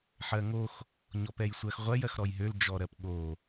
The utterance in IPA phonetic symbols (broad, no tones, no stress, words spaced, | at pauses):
ħɜŋox | ɲɔpɛjsʷɜxʁʷɜj ɜxɾɔjɦøl d͡ʒɔɾɜpɠo